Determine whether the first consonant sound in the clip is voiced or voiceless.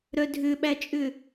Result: voiced